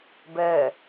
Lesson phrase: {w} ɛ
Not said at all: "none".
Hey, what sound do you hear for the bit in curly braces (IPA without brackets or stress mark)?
b